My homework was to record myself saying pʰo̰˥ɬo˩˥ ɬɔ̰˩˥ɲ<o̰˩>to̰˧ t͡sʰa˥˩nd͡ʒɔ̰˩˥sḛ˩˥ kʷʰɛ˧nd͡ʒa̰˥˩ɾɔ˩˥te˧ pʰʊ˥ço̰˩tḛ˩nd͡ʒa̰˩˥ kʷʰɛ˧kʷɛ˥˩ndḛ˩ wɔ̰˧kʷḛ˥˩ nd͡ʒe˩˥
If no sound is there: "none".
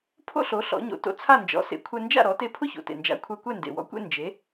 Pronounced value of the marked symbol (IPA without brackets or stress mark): o̰˩˥